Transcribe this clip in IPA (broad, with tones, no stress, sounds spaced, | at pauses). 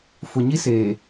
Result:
f ʊ˨ ɲ i˦ s eː˨